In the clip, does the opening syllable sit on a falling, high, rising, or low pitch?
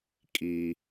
low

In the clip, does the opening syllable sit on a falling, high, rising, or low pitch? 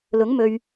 rising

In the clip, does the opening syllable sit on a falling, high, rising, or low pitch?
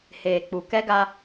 low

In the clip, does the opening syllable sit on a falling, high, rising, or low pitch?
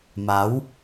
rising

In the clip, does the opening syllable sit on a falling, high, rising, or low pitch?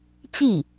falling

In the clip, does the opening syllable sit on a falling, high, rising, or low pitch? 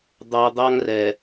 low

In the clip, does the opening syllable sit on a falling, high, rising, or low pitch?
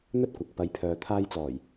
high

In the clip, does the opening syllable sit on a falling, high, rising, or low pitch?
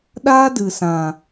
high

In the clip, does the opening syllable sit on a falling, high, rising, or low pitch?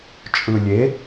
low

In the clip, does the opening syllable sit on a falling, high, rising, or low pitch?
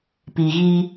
low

